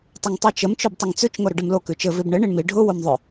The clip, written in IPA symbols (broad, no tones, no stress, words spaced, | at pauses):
tˤəŋtˤʉt͡ʃəm t͡ʃʉbtˤəŋt͡sʉt͡ʃ ŋoɾʊɖɘmlo kʉt͡ʃɘ vibɳɘ ɳiɳmi ɖʱʊ womðˤʊ